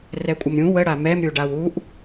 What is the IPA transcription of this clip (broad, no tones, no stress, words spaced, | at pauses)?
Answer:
rɛkʷʼəmɾʲũ wə ɽamɛm ɾʲuɖawuʔ